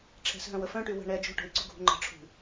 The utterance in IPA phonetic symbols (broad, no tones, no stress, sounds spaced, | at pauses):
ʈ͡ʂʰ ɛ̤ s ɦ œ̃ w ə f œ̃ ʈ y w ə̤ ɳ ɛ d͡ʒ o̤ ʈ o̤ i̯ ɡ͡ǀ u ɡʱ ṳ ŋ͡ǃ ə̤ ʈ͡ʂʰ ṳ